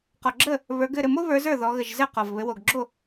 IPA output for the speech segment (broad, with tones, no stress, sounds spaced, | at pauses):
q ɔ˨˩ ɡ͡ǁ ə˥˩ | β ə˞˩˧ ɡ ɘ˥˩ ɾ ɘ˥˩ m o˦ β ə˞˩˧ z ə˞˥˩ ð ɔ˩˧ ɣ ə˨˩ ʒ z ɘ˥˩ q ɔ˨˩ v β ɘ˩˧ w o˨˩ ɡ ɡ͡ǁ o˥˩